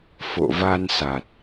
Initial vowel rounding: rounded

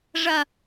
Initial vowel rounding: unrounded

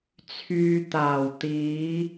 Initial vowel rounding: rounded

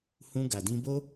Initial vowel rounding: rounded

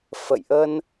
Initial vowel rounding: unrounded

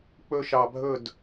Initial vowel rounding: rounded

